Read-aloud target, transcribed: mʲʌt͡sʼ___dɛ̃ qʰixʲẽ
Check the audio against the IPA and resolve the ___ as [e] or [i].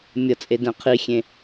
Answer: e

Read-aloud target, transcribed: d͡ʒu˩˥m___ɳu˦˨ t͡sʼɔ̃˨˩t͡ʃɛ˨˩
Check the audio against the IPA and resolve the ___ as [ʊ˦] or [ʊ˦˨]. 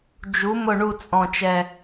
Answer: ʊ˦˨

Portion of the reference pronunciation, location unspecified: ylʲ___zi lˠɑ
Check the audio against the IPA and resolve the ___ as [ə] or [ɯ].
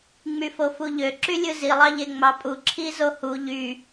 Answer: ɯ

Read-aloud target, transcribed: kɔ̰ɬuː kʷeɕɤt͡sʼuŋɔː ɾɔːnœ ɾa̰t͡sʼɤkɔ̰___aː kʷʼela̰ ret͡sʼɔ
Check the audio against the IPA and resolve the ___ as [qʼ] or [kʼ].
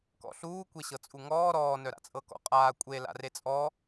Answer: qʼ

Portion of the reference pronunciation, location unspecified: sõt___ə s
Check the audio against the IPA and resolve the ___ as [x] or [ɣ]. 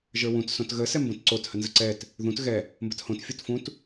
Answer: ɣ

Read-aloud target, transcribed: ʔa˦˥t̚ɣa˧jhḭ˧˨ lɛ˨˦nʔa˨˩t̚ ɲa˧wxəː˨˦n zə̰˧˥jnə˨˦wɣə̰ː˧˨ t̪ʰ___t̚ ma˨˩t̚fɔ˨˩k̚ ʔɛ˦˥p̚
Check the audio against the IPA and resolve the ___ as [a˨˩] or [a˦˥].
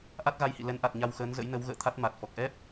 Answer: a˦˥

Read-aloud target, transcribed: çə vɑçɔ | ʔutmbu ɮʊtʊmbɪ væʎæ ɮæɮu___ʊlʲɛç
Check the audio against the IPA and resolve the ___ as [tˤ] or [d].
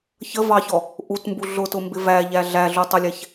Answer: tˤ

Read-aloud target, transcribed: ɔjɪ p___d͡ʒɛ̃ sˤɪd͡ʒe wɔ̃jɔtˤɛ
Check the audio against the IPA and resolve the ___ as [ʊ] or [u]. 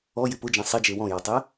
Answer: ʊ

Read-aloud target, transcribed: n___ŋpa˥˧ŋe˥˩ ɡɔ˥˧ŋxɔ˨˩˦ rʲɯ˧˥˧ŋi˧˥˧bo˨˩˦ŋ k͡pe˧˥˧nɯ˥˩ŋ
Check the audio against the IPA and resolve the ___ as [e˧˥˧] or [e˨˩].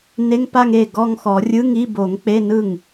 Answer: e˧˥˧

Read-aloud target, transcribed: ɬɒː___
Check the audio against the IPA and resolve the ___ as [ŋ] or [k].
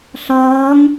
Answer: ŋ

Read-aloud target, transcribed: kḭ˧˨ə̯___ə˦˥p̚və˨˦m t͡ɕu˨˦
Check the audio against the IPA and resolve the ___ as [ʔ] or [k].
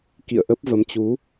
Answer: ʔ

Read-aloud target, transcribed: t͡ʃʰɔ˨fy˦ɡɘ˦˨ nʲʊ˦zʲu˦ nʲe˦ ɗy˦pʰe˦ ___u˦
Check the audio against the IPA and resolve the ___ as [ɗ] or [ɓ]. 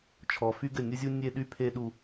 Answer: ɗ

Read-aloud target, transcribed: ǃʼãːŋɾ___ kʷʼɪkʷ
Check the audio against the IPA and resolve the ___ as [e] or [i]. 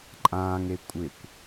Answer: e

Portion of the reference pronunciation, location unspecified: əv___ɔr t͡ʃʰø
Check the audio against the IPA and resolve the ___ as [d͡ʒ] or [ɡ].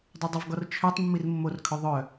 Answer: ɡ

